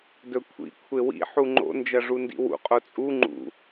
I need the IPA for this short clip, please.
d ɵ kʷʰ ḭ kʷʰ e w ḭ ħ u ŋ͡ǃ o̰ n d͡ʒ ɐ ʐ u n d ḭ w ṵ qʼ o t͡sʼ u ŋ͡ǃ ṵ

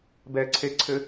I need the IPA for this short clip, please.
b ɛ ǀʰ e ǀʰ ɘ

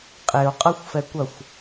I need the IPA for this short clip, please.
qʼ e o̯ qʼ ɐ xʷ f ɛ kʷ ɐ xʷ

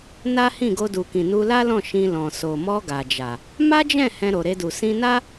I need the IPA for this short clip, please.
n a˦ h ĩ˦˨ ɡ o˧ d u˨ k ĩ˨ n u˧ l a˦ l ɔ̃˦˨ ʃ ĩ˧ l ɔ̃˨ s o˨ m ɔ˧ ɡ a˨ d͡ʒ a˨ | m a˦ d͡ʒ ɛ̃˦˨ h ɛ̃˧ ɾ o˨ ɾ e˧ d u˨ s ĩ˧ n a˦

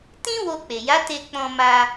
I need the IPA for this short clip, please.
t ĩ˦ w o˧ k͡p e˨ j a˨˦ t e˧ k͡p ɔ̃˧ m a˧

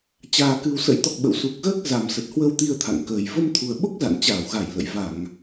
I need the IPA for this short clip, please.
t͡ɕ aː˨˩ k ɨ˨˩ w s ə̰˧˥ j t̪ ɔ˨˩ k̚ ɓ ə̰˧˨ w s u˨˩ k̚ ɣ əː˦˥ k̚ z a˨˩ m s ə˨˩ t̚ h w ə˧ w t̪ i˧ ə̯ t̪ʰ a̰˧˨ ŋ k əː˨˩ j v ə˧ m t̪ʰ u˨˩ ə̯ ɓ o˦˥ k̚ z a̰˧˨ n t͡ɕ aː˧˩ w ɣ a˧˩ j l ə̰˧˨ j v a˧˩˨ ŋ

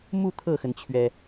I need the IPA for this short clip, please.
m u˥˧ t̪ʰ ɤ˥˩ x ə˩ n t͡ɕʰ ɥ ɛ˩

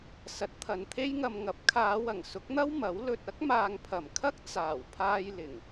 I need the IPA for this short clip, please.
s ɐ˨˥ t̚ t̪ʰ ɐ˨ n t̪ʰ e˥ j ŋ ɐ˨ m ŋ ɐ˨˥ p̚ kʰ aː˨˧ w ɐ˨˩ ŋ s ʊ˨˥ k̚ n̪ ɐ˥ w m ɐ˨˥ w l ɵ˨ t̚ ɐ˥ k̚ m aː˨ ŋ pʰ ɐ˨˩ m kʰ ɐ˥ k̚ t͡s aː˨˩ w pʰ aː˧ j l ɪ˨˩ ŋ

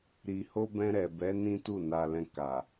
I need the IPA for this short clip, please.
ɾ i˨ h o˧ b ɛ̃˧ ɾ ɛ˨ b ɛ˨˦ n ĩ˦ t u˦˨ n a˧ l ɛ̃˧ k a˨

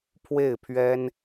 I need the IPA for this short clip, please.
pʰ w e˥˩ ɪ̯ pʰ ɥ ɛ˥ n

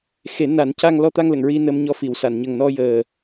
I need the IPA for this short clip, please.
x e˨˩˦ n a˨˩˦ n c a˧ ŋ l ɔ˧ t̪ a˧ ŋ l ə˨˩˨ ŋ ɹ i˧ n ə˧ m ɲ ɔ˧ f i˨˩˨ w s a˨˩˨ n ɲ ə˨˩ ŋ n ɔ˧ j əː˨˩

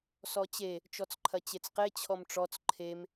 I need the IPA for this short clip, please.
s ɔ t͡ɕ e | t͡ʃ ɔ t͡s ǃʰ ɐ t͡ɕ e t͡s q e t͡ɕʰ ɔ m ʈ͡ʂ ɔ t͡s ǃʰ e m

